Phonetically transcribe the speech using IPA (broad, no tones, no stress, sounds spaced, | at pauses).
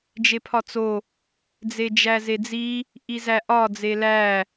d͡ʒ e pʰ ɒ t͡s o | d͡z e d͡ʒ æ z e d͡z i | ʔ i z æ ʔ ɒ d͡z e l æ